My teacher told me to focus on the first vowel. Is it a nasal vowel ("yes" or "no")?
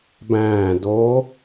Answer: yes